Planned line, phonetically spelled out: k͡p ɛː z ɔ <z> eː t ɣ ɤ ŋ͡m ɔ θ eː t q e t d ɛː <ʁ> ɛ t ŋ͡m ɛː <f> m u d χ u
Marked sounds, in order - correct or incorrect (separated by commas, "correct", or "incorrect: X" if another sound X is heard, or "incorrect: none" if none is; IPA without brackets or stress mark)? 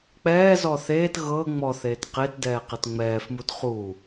incorrect: θ, incorrect: q, correct